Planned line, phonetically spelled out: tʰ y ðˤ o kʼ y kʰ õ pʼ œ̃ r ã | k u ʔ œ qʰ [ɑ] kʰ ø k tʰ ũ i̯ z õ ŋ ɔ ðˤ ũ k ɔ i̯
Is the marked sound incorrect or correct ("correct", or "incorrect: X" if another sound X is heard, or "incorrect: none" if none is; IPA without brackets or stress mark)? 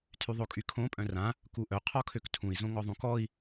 incorrect: ɔ